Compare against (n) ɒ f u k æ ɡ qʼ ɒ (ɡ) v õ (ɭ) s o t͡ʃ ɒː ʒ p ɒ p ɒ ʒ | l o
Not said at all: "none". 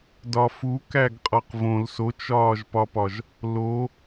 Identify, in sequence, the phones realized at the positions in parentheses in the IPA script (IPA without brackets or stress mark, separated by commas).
d, q, l